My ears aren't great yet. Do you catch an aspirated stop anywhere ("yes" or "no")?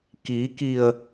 no